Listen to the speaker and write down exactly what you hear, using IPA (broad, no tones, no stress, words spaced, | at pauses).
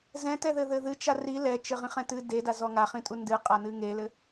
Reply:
zɛ̃tɛðɘðɘ ðɨt͡ʃa ri lɛt͡ʃɘʁĩχɛ̃ tɨ dedazɔ ŋaχĩtʼu ndɨqʼanɨ ŋelɘ